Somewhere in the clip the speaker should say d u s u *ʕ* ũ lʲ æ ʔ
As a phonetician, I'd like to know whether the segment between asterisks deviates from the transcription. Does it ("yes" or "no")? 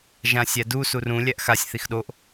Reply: yes